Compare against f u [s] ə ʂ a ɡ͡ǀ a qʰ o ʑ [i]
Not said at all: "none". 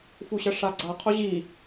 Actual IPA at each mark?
ɕ, i

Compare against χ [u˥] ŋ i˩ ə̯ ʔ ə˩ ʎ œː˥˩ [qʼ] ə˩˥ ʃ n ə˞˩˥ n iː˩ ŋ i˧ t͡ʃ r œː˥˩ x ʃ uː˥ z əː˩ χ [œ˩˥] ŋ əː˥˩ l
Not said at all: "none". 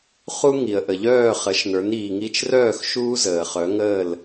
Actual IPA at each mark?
u˥, χ, œ˩˥

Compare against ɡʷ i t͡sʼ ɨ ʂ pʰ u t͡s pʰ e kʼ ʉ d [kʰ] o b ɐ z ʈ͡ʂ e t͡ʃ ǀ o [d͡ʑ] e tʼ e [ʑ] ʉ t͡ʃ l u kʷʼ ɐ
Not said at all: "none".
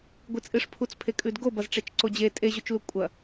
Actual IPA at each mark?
ɡ, d͡ʑ, ʑ

